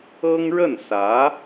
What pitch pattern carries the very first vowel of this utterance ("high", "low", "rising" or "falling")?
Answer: high